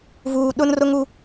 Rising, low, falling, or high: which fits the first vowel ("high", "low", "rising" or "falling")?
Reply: low